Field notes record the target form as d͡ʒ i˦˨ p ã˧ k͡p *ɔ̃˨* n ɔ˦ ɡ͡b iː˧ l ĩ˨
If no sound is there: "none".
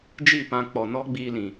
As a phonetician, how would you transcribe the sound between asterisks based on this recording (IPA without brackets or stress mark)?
ɔ˨